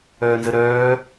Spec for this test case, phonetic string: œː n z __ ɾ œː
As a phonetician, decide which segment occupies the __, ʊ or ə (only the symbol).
ə